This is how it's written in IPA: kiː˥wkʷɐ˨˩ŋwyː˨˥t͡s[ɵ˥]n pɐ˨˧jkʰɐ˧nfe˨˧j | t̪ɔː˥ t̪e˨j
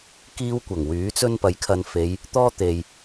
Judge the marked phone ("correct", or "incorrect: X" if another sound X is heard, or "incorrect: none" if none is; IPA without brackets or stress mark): correct